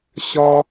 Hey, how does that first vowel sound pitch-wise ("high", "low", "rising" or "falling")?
high